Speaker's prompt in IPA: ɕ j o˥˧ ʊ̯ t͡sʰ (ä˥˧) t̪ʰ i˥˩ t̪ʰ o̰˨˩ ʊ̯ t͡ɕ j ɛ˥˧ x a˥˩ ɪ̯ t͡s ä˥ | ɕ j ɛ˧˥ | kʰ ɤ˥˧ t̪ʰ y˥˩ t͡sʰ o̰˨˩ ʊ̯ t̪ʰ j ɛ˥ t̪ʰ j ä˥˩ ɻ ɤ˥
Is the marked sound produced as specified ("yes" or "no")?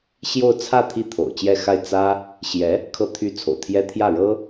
yes